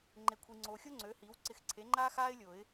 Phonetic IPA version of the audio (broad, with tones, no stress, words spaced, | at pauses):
ŋ͡ǃe˨kʷʰi˨ ŋ͡ǀoː˨xʲo˥ŋ͡ǀøː˩˥hiː˩˥w ǀɪ˨˩˦xǀʰe˩˥ŋ͡ǃaː˥ xaː˥ɪ̯lʲo˨˩˦ɪ̯